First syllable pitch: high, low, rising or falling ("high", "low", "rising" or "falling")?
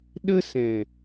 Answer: high